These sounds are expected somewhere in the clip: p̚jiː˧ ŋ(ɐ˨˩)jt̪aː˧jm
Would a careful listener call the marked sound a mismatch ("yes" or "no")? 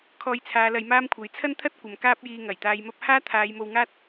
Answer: no